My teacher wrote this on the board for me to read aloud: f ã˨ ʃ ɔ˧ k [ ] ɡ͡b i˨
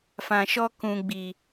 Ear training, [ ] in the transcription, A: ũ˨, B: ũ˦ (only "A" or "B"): A